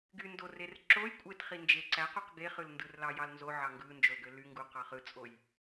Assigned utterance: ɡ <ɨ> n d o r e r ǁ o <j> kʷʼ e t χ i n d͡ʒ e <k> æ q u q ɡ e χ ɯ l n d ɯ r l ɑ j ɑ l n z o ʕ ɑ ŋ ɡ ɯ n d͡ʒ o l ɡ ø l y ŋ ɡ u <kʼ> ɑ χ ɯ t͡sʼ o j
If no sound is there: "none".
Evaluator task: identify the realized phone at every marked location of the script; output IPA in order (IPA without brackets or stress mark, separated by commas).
y, j, ǀ, q